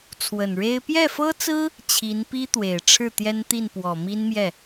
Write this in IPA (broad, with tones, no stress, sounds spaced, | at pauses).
t͡sʰ w ə˨˩ n ɻ e˥ ɪ̯ p j ɛ˥˩ f ɤ˥ t͡s ɹ̩˥ | t͡ɕʰ i˧˥ n p i˥ t̪ w e˨˩ ɪ̯ ʈ͡ʂʰ ɻ̩˥˩ t̪ j ɛ˥ n t̪ i˥˩ n p w ɔ˨˩ m i˥ n m j ɛ˥˩